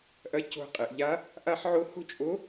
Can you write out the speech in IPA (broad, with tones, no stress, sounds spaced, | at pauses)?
ʔ ɐ˧˥ c o̤˧ qʼ e˩ ʔ ʎ a˧˥ | ʔ a˥ ħ ʕ o˥ h o̤˥ t͡ʃʼ o˧˥